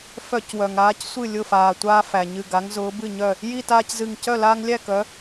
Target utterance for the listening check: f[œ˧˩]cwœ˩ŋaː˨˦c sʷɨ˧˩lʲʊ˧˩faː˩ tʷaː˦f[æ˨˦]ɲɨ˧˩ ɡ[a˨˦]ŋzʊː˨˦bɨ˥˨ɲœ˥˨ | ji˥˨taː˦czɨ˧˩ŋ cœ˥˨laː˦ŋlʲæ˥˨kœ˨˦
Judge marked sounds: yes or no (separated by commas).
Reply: no, no, yes